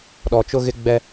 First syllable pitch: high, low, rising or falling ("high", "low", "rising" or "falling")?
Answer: low